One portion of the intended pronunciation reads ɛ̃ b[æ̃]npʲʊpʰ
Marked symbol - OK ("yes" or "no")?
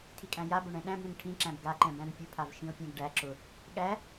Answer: yes